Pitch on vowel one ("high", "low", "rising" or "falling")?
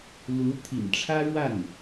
rising